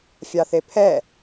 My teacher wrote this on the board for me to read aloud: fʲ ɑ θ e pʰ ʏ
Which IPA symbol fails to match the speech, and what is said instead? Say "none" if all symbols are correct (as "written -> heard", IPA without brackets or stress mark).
ʏ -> ɛ